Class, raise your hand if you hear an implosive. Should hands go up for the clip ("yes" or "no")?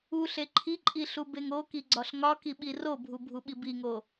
yes